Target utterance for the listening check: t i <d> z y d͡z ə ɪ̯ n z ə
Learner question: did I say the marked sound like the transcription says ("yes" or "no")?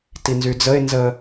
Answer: no